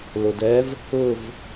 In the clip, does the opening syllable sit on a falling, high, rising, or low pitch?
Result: low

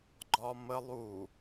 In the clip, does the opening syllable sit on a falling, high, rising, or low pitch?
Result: high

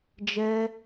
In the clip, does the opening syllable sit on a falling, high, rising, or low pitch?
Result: high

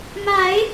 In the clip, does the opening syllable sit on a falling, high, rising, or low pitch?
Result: rising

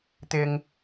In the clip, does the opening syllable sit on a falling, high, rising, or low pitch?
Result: low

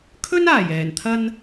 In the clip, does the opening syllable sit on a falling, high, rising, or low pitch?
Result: high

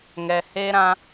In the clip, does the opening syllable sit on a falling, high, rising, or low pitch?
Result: low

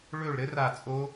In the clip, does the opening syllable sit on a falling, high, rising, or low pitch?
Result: falling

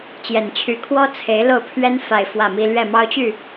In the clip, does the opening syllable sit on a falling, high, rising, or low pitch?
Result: low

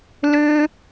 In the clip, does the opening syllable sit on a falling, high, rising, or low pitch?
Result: high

